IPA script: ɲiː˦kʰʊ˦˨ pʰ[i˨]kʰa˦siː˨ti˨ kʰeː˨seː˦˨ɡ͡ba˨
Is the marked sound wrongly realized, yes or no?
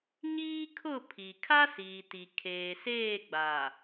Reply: no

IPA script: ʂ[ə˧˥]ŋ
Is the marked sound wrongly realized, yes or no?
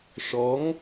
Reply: yes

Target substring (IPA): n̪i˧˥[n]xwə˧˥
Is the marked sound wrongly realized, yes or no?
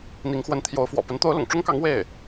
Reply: yes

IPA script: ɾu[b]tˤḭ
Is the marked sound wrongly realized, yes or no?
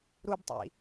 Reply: no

